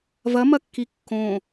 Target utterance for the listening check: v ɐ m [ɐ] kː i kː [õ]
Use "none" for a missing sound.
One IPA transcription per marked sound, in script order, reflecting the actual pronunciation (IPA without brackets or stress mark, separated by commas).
ɐ, õ